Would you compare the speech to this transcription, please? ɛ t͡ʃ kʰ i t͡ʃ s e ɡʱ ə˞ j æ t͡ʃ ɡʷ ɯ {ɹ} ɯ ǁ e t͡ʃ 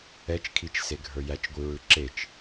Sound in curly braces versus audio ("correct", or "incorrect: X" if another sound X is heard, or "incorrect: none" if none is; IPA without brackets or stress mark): correct